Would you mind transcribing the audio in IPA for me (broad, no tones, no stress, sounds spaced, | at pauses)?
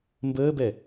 m b əː b ɛ